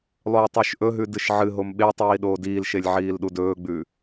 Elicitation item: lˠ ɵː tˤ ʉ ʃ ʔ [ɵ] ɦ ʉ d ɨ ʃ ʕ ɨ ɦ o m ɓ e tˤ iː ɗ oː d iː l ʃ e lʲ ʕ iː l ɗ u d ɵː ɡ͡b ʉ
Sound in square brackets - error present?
no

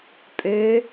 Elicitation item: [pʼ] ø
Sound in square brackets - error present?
no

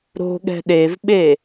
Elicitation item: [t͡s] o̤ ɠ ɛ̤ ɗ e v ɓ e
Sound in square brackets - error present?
yes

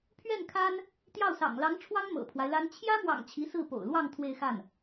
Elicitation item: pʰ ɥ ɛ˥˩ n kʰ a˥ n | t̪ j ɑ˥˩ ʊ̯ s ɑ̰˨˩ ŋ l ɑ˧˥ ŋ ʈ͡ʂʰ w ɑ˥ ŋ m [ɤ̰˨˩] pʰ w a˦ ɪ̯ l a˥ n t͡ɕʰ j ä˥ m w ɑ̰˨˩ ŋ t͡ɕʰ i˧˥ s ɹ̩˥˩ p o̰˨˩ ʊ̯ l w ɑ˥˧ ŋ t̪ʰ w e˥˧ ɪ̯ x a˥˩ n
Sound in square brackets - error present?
no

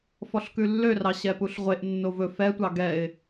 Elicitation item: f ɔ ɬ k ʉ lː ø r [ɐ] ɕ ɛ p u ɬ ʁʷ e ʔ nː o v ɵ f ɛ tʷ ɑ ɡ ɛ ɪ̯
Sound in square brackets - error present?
yes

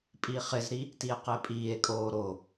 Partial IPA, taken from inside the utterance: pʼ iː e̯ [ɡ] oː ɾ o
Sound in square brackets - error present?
yes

